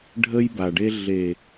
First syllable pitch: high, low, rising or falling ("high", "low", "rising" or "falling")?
high